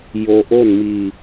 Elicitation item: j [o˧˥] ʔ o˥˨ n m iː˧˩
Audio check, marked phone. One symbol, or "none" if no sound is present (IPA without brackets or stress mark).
o˧